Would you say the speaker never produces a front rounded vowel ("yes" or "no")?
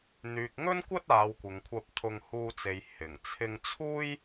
no